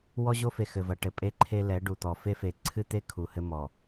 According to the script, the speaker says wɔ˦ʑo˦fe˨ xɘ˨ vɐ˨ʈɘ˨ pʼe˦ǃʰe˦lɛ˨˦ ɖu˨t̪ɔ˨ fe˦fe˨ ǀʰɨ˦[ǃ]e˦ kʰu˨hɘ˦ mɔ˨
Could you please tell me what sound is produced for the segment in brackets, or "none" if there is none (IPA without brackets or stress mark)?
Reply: t̪